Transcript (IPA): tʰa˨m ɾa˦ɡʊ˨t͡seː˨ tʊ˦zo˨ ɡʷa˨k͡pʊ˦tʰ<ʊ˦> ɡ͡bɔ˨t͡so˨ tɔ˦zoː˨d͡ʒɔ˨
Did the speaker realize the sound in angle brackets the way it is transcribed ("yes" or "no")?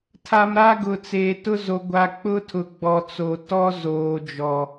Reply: no